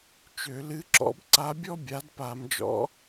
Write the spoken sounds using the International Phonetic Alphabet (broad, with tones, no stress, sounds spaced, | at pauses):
t͡ʃ ø˧˩˧ l ɨ˧˥ ǁ ɔ̰˧˥ b ǀ a˧˥ bʲ ɔ˥ bʲ a˩˥ d p a˧˩˧ m d͡ʒ ɔ̰˧˥